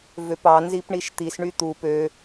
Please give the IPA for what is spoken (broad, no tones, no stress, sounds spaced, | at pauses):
v ø p ɑ n z i p ɳ i ʃ t̪ i s ɳ y t̪ u p ø